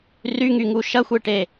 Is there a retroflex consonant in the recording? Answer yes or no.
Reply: yes